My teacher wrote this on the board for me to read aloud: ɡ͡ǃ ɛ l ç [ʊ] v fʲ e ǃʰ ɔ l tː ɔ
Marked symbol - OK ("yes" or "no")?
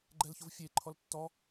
yes